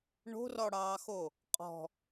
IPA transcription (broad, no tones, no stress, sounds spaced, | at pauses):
ɳ o̤ r ɔ ɽ ɑː x o | qʼ ɔ̤